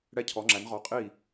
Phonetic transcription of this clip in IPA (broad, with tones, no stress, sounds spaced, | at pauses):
ɽ ɛ˧˩ cʰ ɔ˩˧ ŋ͡ǁ æ˩˧ n ʁ ɔ˩˧ qʼ i˧˩